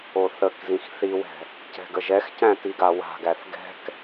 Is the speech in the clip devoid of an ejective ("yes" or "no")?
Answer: yes